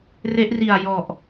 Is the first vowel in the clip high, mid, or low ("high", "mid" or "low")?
mid